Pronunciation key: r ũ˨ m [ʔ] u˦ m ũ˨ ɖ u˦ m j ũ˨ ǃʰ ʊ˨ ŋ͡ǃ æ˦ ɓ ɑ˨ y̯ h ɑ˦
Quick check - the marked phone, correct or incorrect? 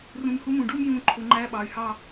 incorrect